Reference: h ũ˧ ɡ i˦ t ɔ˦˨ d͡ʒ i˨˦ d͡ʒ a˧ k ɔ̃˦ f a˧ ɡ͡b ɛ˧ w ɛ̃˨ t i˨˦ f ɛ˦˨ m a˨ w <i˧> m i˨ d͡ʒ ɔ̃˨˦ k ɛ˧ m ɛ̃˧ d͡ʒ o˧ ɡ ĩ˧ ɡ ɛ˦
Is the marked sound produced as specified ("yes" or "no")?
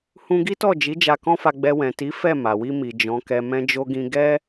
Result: yes